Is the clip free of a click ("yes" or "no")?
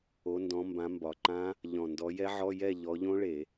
no